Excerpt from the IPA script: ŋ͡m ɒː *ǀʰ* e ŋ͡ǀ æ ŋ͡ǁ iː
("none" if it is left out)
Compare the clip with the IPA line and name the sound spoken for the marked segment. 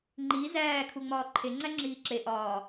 ǃʰ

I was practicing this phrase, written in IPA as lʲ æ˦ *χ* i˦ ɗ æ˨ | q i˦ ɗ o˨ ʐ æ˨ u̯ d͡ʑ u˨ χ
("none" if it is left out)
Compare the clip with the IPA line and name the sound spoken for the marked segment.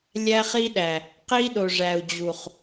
χ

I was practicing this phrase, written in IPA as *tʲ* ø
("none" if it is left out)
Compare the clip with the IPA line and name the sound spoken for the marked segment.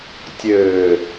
tʲ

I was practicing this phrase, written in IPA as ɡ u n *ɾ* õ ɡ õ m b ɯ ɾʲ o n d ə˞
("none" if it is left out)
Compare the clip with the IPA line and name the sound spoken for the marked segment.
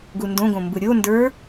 d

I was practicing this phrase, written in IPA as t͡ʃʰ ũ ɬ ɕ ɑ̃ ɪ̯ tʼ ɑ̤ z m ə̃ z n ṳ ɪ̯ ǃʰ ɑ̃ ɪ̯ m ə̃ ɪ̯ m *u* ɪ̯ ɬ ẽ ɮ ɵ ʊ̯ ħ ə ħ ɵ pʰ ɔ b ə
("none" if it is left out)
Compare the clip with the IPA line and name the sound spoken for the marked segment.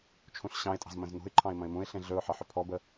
ũ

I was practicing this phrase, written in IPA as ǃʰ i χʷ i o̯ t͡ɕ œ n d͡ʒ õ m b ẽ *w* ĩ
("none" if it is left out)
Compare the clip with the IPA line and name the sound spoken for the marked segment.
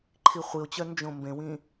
w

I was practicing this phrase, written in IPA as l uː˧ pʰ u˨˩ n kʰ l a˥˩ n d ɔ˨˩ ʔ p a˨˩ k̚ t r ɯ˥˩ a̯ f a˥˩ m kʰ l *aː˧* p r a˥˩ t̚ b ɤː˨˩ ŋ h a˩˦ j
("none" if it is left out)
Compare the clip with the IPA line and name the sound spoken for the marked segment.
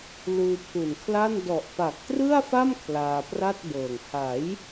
aː˧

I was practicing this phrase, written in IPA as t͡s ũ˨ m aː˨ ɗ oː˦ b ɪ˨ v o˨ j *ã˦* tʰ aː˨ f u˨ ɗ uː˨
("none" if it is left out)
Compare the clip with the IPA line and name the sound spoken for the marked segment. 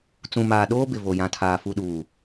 ã˨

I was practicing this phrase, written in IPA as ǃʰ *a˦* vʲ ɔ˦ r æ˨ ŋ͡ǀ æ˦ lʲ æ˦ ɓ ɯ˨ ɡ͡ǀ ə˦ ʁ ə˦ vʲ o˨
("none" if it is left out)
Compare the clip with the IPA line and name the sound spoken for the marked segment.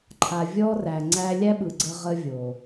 a˨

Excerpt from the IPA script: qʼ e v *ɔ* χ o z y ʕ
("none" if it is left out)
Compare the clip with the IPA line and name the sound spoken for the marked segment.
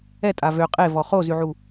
ɔ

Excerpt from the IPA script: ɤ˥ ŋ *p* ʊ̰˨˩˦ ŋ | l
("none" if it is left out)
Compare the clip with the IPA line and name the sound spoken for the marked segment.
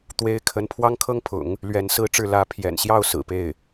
pʰ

